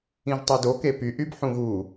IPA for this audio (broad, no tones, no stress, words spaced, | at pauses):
ĩʒtˤɯdo kepy ʔybħũɣu